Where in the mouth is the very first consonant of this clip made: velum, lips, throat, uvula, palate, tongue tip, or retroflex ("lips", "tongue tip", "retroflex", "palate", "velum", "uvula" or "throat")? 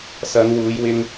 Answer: tongue tip